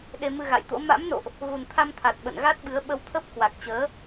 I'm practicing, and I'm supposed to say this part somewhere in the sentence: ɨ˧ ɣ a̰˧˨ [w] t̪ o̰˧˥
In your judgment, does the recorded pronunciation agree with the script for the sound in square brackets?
no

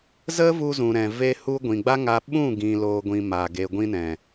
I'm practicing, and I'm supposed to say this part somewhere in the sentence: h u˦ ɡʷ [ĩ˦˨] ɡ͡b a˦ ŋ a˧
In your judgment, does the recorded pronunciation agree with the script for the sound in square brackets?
no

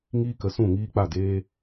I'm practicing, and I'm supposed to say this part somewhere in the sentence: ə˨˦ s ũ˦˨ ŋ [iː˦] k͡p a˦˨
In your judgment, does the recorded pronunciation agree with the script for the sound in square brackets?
yes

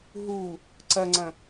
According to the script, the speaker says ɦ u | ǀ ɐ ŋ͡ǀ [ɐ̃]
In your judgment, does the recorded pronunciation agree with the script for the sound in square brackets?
yes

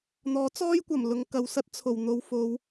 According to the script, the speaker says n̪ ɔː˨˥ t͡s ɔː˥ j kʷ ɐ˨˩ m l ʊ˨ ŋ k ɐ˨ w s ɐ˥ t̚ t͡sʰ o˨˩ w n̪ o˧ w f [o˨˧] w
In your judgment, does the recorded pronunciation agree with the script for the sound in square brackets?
yes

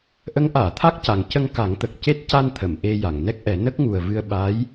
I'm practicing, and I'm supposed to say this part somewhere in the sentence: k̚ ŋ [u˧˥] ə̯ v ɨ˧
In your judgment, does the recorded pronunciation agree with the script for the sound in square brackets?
no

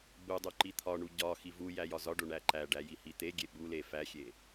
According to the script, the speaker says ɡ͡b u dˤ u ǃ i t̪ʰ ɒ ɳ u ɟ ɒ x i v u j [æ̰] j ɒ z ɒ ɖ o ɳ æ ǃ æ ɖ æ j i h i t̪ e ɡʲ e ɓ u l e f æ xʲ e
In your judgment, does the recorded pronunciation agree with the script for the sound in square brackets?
no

